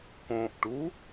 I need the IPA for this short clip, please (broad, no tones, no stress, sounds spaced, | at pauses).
k õ ʔ ʈ u